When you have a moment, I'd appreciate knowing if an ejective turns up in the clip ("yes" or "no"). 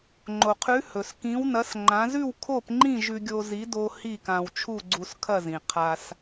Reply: no